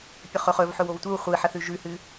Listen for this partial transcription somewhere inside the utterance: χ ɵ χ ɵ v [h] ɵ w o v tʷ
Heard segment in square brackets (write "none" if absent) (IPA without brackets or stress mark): ħ